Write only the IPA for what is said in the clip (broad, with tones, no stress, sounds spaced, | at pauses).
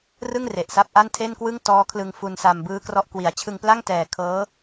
r ɯ˥˩ ŋ r e˨˩ ʔ s a˦˥ p̚ ʔ a˥˩ n tʰ e˥˩ n k w ɯ˥˩ ŋ t ɔː˦˥ kʰ l ɯ˧ ŋ f u˧ n s a˧ m b ɯː˦˥ k r ɔ˦˥ ʔ k w i˩˦ a̯ t͡ɕʰ ɯ˧ ŋ p l a˥˩ ŋ t ɛː˨˩ kʰ ɤː˦˥